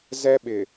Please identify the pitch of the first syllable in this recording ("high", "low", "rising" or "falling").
high